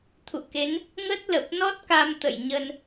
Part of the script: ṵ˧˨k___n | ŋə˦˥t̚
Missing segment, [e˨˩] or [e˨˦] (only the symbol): e˨˦